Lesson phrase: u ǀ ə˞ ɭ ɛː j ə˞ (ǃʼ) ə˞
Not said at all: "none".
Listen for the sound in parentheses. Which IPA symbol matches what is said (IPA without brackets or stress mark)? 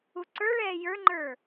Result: ŋ͡ǃ